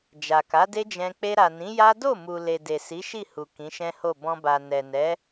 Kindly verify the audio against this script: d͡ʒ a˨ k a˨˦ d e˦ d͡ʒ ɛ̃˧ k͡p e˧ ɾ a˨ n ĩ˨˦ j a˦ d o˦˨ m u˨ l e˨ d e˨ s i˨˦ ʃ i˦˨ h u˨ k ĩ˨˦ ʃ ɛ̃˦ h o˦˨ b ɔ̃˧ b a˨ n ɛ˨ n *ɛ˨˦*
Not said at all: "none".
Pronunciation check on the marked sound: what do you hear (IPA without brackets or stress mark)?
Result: ɛ˨˦